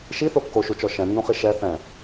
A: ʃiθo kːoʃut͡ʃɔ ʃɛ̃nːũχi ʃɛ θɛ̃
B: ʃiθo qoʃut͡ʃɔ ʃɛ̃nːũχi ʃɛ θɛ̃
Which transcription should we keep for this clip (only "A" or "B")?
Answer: A